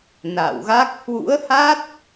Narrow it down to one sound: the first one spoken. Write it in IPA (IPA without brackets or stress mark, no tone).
n